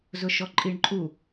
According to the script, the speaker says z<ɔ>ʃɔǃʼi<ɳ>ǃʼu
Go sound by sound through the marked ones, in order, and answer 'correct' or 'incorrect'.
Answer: incorrect: ʊ, correct

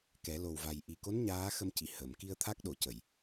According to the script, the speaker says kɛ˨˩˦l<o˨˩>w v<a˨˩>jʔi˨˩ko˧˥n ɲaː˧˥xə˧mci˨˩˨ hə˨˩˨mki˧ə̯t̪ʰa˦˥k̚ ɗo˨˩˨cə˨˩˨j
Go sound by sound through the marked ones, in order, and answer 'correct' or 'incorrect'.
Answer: correct, correct

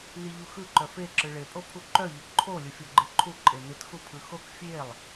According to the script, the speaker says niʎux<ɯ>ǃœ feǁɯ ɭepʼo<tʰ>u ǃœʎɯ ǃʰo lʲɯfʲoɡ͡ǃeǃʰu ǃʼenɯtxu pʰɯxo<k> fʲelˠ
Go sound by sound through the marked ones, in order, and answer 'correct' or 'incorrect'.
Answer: correct, incorrect: pʰ, correct

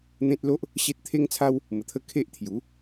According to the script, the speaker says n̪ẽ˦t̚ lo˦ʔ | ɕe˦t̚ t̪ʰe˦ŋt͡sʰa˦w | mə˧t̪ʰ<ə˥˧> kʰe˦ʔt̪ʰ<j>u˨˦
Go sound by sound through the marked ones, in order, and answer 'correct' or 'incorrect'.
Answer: correct, correct

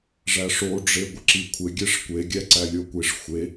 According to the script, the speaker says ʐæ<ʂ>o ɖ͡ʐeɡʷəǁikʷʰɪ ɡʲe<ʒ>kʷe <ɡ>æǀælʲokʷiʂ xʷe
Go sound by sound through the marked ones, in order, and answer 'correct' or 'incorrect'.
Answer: correct, incorrect: ʂ, incorrect: ɡʲ

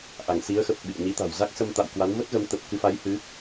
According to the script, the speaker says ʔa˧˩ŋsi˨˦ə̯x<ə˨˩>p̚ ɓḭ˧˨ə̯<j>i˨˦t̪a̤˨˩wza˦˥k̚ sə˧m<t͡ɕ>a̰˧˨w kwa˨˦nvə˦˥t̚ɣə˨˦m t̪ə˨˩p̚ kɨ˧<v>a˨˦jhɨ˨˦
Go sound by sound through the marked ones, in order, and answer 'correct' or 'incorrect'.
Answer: correct, incorrect: ɲ, incorrect: t̪, incorrect: f

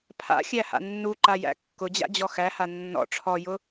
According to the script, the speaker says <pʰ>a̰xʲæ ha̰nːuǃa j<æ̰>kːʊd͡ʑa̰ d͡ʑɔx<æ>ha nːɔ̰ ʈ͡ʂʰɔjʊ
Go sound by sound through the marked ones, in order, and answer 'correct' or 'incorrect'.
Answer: correct, correct, correct

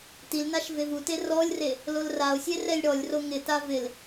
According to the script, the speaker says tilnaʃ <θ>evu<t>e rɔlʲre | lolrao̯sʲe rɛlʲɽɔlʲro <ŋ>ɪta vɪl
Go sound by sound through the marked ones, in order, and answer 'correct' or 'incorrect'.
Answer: incorrect: v, correct, correct

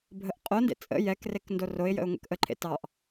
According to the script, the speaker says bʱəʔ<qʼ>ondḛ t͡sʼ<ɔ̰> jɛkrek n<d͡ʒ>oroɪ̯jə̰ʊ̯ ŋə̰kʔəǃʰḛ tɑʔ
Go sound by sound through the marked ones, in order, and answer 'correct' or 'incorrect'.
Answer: correct, incorrect: ə̰, incorrect: d

